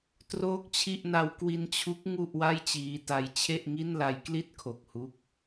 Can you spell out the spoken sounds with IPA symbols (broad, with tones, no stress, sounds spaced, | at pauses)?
t r oː˥˩ k̚ t͡ɕʰ i˥˩ ʔ n a˦˥ w k w i˧ n t͡ɕʰ u˦˥ k̚ ŋ u˥˩ ʔ w a˥˩ j t͡ɕ iː˦˥ t a˦˥ j t͡ɕʰ e˥˩ ʔ ŋ i˥˩ n l a˦˥ j k l i˥˩ t̚ kʰ o˨˩ k̚ h u˦˥ k̚